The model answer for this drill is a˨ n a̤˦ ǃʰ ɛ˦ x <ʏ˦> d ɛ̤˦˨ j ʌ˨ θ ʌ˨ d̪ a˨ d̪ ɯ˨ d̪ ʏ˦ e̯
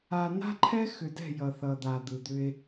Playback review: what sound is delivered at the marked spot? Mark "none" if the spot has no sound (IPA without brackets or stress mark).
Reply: ʏ˨